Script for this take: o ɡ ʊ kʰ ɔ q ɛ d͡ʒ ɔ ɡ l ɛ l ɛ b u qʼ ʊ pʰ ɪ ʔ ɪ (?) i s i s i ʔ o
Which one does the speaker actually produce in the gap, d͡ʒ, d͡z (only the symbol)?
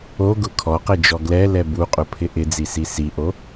d͡z